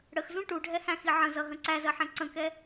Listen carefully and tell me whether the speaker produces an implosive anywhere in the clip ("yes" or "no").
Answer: no